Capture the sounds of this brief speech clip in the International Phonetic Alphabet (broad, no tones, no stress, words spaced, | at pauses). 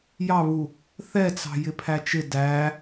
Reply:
jɑβu | θɛt͡sɑ̤ jɪpʰæt͡ʃɪ dæ